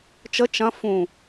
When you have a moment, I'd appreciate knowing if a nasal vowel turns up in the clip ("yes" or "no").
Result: yes